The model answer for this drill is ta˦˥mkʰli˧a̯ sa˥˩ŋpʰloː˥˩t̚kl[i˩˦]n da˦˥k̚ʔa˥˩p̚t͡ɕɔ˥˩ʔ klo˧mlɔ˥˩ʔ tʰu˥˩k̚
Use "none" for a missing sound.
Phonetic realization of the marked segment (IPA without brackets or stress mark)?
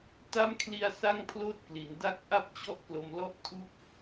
i˩˦